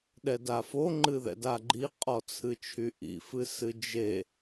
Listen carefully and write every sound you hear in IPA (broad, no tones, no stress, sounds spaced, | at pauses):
ɗ ɛ d a f o ŋ͡ǃ ɨ ð ɛ̰ d a ɡ͡ǃ i qʼ ɔ t͡sʰ ɨ t͡ʃʰ y ʔ ḭ f ɨ s ɨ d͡ʒ e